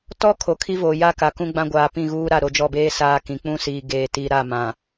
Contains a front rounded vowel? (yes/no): no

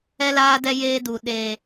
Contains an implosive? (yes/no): yes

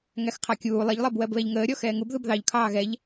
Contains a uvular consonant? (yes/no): yes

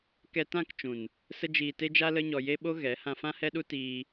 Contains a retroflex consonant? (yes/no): no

